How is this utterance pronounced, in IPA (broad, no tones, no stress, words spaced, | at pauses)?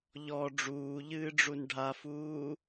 ʎɔ ɖ͡ʐuːʎɨːɖ͡ʐun ɖʱafuː